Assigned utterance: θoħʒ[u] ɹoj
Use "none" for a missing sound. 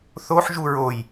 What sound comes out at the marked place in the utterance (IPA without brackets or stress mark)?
u